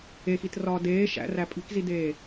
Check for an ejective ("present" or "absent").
present